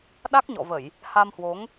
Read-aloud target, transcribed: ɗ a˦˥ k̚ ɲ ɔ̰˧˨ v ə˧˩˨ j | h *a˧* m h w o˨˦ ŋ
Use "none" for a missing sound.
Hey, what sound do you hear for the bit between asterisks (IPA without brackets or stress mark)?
a˧